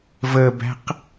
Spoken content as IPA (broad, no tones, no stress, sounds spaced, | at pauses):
v ə b æ̤ q